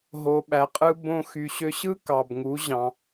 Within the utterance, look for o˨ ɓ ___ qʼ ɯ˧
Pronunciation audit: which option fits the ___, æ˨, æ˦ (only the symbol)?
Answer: æ˨